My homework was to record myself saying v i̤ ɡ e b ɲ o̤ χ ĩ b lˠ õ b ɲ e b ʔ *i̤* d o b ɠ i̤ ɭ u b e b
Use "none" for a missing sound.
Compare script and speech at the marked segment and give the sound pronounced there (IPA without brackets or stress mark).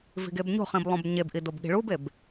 i